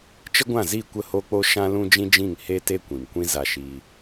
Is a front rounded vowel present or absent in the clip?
absent